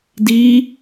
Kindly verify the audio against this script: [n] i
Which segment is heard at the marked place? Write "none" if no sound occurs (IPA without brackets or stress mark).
d